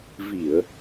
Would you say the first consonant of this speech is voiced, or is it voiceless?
voiced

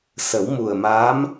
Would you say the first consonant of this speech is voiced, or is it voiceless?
voiceless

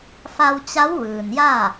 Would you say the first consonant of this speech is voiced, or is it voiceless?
voiceless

